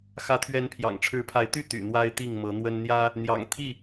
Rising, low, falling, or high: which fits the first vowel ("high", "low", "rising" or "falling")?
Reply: rising